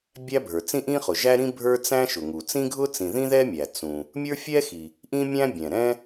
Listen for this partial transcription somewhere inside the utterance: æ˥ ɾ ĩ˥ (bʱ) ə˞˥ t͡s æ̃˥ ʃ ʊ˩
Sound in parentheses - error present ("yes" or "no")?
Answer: no